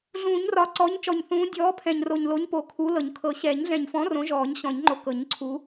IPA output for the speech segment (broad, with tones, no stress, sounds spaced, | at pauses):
ɮ ũː˨˩˦ ɲ r ɒ˨˩ ǀ ɔ˨˥ ɲ t͡ʃ ɔ˨˩ ɲ θ ũː˨˥ dʲ ɔː˨˥ pʰ ɛ̃˨˩ ɲ r o˨˩ ɲ l o˨˥ ɲ p o˨˩ kʰ u˨˥ l ɤ˨˩˦ ɲ kʰ ɤ˨˩˦ ɕ ɛ˨˩˦ ɲ ɮ ɛ̃˨˩ ɲ f ɔ̃˨˥ r õ˨˥ ʒ ɔː˨˩˦ ɲ ɕ ɔ̃˨˩˦ ɲ ŋ͡ǃ o˨˥ k ɤ˨˩˦ ɲ ǀʰ u˨˥